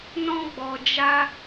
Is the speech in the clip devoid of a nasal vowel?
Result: no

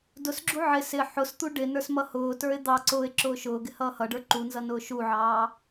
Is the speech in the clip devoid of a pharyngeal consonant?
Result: no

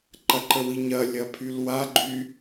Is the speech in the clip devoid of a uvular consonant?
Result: yes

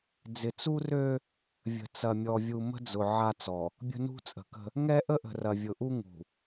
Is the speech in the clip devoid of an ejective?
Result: no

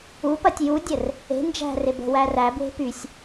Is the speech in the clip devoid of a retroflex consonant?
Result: yes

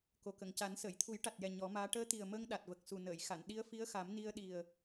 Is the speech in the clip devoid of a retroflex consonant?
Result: no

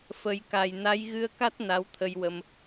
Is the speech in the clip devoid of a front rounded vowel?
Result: yes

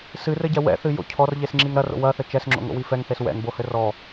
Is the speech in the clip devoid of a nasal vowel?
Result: yes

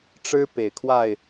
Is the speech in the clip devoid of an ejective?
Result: yes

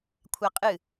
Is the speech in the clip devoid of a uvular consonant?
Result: no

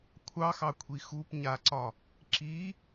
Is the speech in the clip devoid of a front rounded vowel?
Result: yes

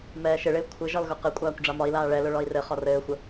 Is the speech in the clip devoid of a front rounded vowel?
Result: yes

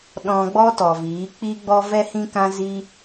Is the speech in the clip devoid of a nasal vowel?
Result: no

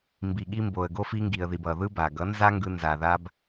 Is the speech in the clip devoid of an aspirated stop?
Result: yes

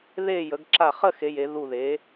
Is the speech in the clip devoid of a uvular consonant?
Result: no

